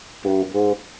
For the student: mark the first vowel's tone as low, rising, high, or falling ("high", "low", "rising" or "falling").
low